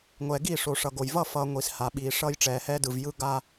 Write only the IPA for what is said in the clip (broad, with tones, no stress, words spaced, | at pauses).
ŋʷɛː˨ɡi˦˨ʂo˨ ʂʌ˨ɡo˨j vʌ˦˨fʌː˨ ŋʷi˨sha˨ɓiː˨ ʂʌː˦jʈ͡ʂɛː˨hɛː˦dɯ˨v jɯ˦ɡa˦